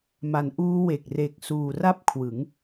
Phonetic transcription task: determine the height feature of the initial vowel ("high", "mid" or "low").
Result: low